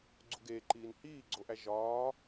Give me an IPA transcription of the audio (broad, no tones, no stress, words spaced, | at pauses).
ɡ͡ǀuɡeːǃiːn hiːɡ͡ǀoʔæ ʒɒː